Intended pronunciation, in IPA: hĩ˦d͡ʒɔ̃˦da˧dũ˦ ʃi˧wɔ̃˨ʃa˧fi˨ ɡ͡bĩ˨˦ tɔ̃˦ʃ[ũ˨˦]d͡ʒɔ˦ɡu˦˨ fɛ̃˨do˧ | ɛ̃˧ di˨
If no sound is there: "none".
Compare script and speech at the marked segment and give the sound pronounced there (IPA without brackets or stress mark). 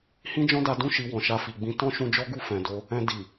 ũ˧